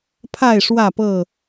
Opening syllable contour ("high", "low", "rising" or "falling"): falling